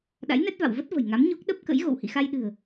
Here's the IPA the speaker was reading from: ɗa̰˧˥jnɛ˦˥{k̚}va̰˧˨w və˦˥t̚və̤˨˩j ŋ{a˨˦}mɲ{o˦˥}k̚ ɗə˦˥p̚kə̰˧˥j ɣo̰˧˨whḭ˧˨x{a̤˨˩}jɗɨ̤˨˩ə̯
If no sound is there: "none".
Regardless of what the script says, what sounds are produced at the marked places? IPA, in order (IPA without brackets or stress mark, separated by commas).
t̚, a˨˦, o˦˥, a˧